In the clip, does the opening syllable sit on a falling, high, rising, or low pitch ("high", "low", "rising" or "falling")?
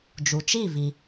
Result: low